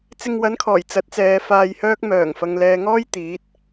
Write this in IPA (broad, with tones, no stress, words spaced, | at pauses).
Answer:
t͡sɪ˧ŋwɐ˨˥nkʰɔː˨˩j t͡sɐ˨˥t̚t͡sɛː˨˧faː˧jhœː˥k̚ mœː˨˩ŋ fɐ˨ŋ lɛː˨ŋɔː˥j t̪iː˨˥t̚